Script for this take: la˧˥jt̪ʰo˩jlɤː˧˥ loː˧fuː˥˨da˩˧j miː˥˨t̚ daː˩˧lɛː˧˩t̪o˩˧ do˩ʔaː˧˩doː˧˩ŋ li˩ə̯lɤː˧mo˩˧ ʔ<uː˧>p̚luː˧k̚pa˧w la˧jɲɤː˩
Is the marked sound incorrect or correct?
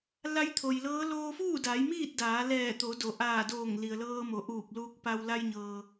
incorrect